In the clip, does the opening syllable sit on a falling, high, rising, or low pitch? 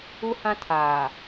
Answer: high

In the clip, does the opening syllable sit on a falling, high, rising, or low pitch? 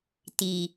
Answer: low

